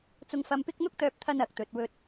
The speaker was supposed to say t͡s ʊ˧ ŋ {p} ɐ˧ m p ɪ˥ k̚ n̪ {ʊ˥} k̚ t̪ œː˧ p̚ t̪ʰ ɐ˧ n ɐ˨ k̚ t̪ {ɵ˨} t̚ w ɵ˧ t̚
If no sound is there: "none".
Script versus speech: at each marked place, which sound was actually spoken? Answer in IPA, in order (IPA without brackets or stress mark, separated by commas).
f, ʊ˥, ɵ˨